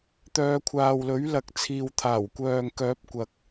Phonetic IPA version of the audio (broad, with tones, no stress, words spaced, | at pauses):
t̪œː˧ kʷʰaː˨wlɵ˨˥ɥlɐ˨k̚t͡sʰiː˨w t̪ʰaː˨˩wkʷœː˨ŋ kœː˨˥p̚kʷɐ˨k̚